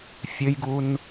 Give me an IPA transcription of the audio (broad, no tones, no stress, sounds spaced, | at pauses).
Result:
fʲ ɘ j ɡ u n